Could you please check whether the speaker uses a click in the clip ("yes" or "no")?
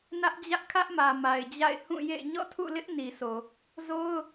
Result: no